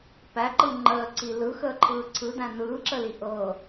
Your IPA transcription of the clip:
p æ ǃ ɯ ŋ͡ǃ əː ǀ i l ɯ x əː ǃʰ ɯː ǀʰ ɯ d æ̃ n ɯː ǁ ə l i ʔ ɤ

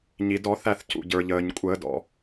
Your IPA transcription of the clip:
ɲ i˩ d ɔ˧˩˧ θ æ˧˩ θ c ṵ˩ ɟ ə˞˩ ʎ əː˩ ɲ kʷʼ əː˧˩˧ d ɔ̰˩

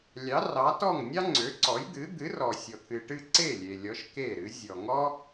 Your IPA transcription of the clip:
lʲ ɑ˩˥ r ɑ˩˥ t ɔ˥˩ ŋ nʲ ɑ˥ ŋ͡ǀ ø˩˥ ǀ ɔ˩˥ j d̪ ɨ˩˥ d̪ ɨ˩˥ r ɔ˩ sʲ ɔ˩ t̪ʰ ɨ˩ ʈ ɨ˥˩ ǀ e˥˩ lʲ e˩ lʲ ɔ˩˥ ʃ k e˥˩ ɾ ɨ˩˥ zʲ ɔ˩ ŋ ɔ˥

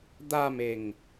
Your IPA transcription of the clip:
d̪ a m e ŋ

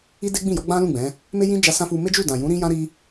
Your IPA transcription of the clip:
i˦ d e˦ ɡ͡b ĩ˦˨ j ɔ˨˦ ɡ͡b ã˦ l ũ˦˨ ɡ͡b ɛ̃˨˦ | m e˦ j ĩ˦ d͡ʒ a˧ s ã˦ f u˧ m e˦ d͡ʒ u˦˨ d ã˨ j ũ˨˦ ɾ ĩ˦ j ã˦ ɾ i˦

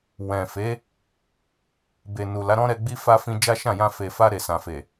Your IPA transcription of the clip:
w ɛ̃˨ f e˨˦ | b e˨ n u˨ l a˨˦ ɾ ɔ̃˦ ɾ ɛ˧ ɡ͡b i˦ f a˦ f ĩ˧ d͡ʒ a˦ ʃ ã˦˨ j ã˧ f e˨ f a˧ ɾ e˨ s ã˨ f e˨

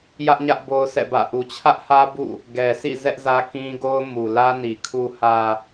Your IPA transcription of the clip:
j ä˦ ʔ ɲ ä˦ ʔ b o˦ ʊ̯ s ɛ̰˦˨ b ä̰˦˨ ʔ u˨ t͡ɕʰ ä˦ ʔ h ä˦ b ṵ˦˨ | ɡ ɛ˨ s ḭ˦˨ z ɛ˦ ʔ z ä˦ k ĩ˦ ɡ o˦ ʊ̯ m u˨ l ä˦ n i˨ kʰ u˨ h ä˨

